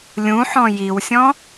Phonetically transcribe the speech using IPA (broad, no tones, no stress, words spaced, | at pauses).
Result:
lʲũħɔ̃ jiwsʲɔ̃